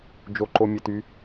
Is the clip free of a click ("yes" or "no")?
no